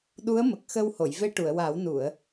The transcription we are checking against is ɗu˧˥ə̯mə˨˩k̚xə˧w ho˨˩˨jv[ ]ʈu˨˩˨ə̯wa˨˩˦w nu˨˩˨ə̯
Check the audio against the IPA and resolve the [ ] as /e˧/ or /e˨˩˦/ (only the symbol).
e˧